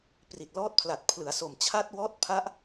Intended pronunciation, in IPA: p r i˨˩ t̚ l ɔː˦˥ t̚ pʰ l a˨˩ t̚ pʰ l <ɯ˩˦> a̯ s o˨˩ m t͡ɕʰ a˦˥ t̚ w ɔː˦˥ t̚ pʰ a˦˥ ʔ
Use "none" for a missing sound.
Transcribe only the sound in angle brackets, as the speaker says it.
ɯ˩˦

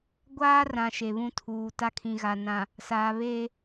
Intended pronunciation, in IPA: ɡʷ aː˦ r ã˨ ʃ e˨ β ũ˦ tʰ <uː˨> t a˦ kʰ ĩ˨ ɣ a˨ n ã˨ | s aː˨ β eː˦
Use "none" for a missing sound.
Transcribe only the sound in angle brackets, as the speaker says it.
uː˨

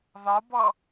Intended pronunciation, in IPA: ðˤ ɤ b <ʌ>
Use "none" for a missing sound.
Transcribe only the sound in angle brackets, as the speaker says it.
ʌ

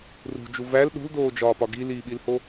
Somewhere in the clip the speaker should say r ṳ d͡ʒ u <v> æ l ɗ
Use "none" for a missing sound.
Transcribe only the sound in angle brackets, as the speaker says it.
v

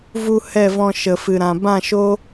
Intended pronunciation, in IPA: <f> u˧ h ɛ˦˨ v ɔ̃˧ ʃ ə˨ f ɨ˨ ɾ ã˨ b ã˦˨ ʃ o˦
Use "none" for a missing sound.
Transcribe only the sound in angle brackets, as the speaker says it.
v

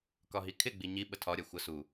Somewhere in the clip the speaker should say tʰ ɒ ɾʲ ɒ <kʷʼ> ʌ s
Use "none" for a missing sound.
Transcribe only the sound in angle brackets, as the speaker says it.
xʷ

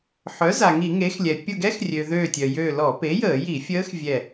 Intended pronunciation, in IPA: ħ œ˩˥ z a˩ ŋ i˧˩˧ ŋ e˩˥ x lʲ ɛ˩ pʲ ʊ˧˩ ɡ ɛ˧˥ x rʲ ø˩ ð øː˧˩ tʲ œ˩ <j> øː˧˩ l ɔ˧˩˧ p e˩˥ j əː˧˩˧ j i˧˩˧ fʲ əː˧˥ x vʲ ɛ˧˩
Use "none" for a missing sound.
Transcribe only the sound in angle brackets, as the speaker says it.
j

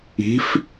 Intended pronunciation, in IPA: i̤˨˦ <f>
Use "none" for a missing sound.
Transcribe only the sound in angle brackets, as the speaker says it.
f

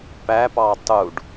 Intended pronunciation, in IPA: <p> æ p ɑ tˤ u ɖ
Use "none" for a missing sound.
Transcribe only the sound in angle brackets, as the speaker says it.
p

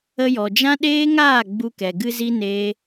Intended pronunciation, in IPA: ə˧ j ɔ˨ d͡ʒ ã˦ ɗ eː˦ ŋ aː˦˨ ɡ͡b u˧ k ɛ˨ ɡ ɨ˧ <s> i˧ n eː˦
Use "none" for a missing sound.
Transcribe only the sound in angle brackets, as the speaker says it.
z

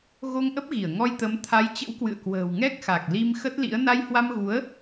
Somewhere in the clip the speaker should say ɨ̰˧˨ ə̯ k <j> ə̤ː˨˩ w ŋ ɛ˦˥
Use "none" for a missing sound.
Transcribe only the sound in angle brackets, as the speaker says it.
w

